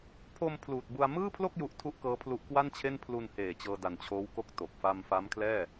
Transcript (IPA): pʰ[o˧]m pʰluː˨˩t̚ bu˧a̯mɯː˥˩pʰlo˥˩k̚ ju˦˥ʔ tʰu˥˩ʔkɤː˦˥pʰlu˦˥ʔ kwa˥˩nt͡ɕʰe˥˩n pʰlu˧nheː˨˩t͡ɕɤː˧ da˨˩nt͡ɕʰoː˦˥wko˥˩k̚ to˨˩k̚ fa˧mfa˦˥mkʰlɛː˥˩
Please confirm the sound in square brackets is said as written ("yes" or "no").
yes